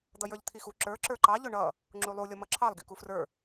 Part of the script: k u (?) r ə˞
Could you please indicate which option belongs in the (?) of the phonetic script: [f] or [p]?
f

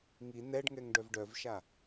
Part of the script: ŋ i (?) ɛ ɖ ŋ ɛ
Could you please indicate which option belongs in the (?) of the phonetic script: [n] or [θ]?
n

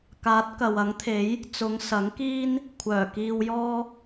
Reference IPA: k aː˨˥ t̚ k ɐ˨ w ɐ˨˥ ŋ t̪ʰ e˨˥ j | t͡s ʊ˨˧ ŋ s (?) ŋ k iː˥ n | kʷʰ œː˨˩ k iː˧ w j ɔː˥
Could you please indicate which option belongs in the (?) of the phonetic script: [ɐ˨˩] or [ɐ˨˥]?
ɐ˨˥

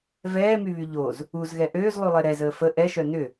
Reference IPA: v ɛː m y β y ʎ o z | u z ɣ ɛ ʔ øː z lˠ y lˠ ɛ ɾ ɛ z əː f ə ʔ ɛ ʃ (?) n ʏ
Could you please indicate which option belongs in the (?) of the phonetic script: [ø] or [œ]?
œ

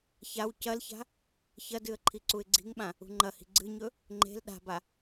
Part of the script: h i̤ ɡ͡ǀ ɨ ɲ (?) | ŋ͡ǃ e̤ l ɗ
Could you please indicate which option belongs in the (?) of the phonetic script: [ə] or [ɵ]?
ɵ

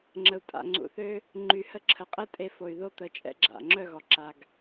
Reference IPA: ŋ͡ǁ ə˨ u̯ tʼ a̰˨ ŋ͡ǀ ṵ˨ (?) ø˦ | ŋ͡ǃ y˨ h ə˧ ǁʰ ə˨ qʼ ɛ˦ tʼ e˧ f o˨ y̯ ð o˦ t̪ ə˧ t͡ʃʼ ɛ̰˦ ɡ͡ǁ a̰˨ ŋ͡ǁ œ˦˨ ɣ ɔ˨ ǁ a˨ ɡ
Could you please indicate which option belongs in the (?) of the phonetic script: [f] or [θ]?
θ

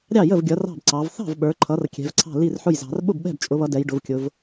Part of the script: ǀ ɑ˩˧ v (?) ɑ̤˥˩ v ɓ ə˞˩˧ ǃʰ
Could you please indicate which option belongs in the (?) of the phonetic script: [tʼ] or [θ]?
θ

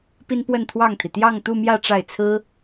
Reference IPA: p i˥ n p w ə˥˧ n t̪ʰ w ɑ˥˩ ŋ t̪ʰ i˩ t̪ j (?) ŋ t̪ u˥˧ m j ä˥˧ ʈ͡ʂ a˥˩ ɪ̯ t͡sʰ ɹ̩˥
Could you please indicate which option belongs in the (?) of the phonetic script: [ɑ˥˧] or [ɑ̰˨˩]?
ɑ˥˧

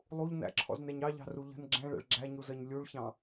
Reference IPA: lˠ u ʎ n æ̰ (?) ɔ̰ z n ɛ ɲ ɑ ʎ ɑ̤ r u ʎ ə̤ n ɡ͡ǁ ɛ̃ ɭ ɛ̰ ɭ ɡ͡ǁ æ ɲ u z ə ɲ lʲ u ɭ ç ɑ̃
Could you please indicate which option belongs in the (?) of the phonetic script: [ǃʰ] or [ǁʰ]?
ǁʰ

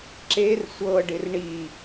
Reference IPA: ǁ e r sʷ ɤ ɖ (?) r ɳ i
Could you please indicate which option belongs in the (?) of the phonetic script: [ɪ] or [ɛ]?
ɪ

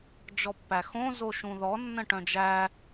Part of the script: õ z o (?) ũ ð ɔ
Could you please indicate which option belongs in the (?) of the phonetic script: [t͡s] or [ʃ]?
ʃ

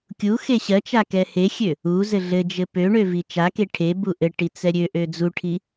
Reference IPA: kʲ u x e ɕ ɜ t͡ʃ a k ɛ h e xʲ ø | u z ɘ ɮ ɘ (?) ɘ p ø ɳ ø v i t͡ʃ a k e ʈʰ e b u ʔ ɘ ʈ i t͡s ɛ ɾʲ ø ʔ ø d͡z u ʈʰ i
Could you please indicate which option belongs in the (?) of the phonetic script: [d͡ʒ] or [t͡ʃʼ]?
d͡ʒ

